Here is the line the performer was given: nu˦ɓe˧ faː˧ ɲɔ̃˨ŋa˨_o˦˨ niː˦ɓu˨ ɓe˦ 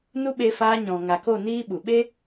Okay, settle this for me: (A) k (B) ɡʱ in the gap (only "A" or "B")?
A